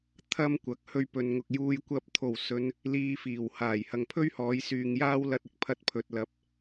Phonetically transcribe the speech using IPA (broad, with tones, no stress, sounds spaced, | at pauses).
t̪ʰ ɐ˥ m kʷ ɐ˨ k̚ h ɵ˧ ɥ p ɵ˨ n ŋ ʊ˨ k̚ j uː˧ j kʷ ɐ˧ p̚ t̪ʰ o˨˩ w s ɵ˨˧ n | l iː˧ f iː˨˩ w h aː˨˩ j h ɐ˨ ŋ pʰ ɵ˥ ɥ h ɔː˨˧ j s yː˨ ŋ j aː˥ w l ɐ˧ t̚ ɪ˧ k̚ pʰ ɐ˧ t̚ pʰ ɵ˨ t̚ l ɐ˨˥ p̚